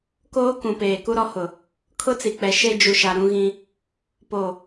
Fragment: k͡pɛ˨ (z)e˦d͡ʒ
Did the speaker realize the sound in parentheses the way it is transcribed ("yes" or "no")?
no